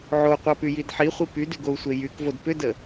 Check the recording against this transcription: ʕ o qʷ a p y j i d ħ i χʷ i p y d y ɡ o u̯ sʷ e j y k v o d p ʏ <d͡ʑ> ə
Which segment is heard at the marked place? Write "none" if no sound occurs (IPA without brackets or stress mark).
d